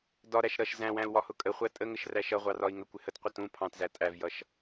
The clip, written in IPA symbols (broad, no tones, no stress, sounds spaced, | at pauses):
d ɒ ɾ æ ʃ ɾ ʌ ʃ z æ̃ w æ̃ u̯ w ɒ h ʊ kʼ ə χʷ æ tʼ ə ŋ ə ʃ r æ ʃ ʌ ʁʷ ɑ r ɒ i̯ ŋ ə kʷ ɪ h ə t qʷ ə t ũ pʰ ɑ̃ t z æ tʼ æ v j ʌ ʃ